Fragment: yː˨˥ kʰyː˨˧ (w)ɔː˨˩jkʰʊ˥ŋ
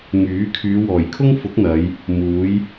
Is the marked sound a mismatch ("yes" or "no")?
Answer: no